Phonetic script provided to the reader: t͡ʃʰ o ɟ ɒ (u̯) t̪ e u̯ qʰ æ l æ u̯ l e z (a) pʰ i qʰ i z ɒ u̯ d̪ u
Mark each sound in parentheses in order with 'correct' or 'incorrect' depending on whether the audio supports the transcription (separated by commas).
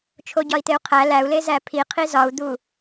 incorrect, incorrect